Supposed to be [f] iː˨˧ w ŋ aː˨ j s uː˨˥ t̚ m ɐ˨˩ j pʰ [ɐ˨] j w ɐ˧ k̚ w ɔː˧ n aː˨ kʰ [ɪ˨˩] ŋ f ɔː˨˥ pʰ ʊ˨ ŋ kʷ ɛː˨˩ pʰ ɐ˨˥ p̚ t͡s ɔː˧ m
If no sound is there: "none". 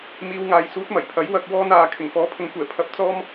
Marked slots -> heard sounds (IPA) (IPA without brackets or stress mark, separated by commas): m, ɐ˨˥, ɪ˨˩